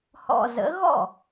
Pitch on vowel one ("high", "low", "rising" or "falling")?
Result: low